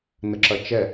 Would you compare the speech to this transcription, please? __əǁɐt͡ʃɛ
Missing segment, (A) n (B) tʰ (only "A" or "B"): A